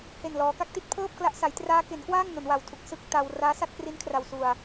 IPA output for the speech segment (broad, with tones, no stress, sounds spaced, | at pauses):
h e˨˩ n l ɔː˩˦ k a˦˥ k̚ t i˥˩ t̚ pʰ ɤː˥˩ p̚ k l a˦˥ ʔ s a˩˦ j t r aː˦˥ k e˩˦ n k w aː˥˩ ŋ n o˩˦ n w a˨˩ w tʰ u˨˩ k̚ s ɯ˥˩ k̚ t a˧ w r aː˦˥ s a˥˩ t̚ k r i˦˥ n kʰ r a˧ w s u˧ a̯